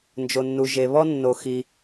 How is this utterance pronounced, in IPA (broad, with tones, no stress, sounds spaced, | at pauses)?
n d͡ʒ o˩ nː u˩ ʒ e˩ β ɔ˥ nː o˩ x i˩